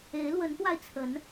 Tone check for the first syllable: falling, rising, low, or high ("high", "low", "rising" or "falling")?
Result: rising